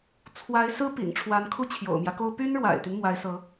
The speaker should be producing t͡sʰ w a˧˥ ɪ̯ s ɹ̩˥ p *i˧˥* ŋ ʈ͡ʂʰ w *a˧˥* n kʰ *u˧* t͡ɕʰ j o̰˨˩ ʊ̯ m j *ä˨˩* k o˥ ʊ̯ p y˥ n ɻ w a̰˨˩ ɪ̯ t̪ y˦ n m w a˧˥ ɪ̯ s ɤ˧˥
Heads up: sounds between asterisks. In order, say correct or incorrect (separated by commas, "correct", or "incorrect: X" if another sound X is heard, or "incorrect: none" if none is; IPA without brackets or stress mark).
incorrect: ḭ˨˩, correct, incorrect: u˥, incorrect: ä˦